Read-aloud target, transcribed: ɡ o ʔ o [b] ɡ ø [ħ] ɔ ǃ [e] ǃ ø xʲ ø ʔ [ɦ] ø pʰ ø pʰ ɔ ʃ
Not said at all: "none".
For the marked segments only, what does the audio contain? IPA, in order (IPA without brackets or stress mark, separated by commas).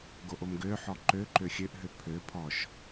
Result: m, ħ, ø, ɦ